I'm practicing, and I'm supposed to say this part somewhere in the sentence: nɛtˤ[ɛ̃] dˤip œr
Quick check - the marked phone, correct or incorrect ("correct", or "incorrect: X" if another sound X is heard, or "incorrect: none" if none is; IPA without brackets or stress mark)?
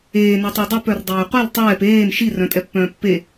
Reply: incorrect: ɛ